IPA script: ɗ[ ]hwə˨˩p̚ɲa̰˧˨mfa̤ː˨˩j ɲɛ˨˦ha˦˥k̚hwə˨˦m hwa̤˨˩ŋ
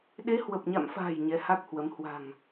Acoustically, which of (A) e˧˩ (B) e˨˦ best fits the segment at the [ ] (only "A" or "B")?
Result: B